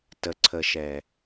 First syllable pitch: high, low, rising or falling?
low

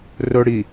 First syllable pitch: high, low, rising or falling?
high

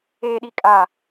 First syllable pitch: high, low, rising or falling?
high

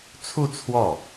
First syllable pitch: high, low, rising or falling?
falling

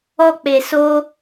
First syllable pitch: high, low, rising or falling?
high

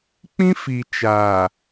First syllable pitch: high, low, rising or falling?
high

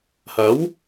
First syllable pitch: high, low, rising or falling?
rising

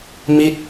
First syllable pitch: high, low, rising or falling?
falling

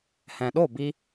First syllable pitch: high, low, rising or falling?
low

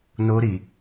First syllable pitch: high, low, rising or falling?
high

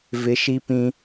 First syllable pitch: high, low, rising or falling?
rising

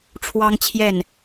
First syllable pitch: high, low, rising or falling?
high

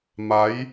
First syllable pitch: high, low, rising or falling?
rising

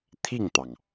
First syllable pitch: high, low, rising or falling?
falling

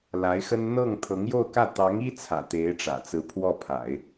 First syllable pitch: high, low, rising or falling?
rising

